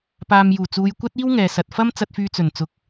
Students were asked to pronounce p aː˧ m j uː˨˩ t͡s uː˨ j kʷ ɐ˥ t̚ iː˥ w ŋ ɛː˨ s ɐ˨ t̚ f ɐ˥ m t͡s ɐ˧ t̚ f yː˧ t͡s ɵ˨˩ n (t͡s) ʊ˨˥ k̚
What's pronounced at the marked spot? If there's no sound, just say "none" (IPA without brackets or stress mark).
t͡s